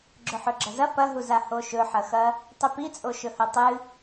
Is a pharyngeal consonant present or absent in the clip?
present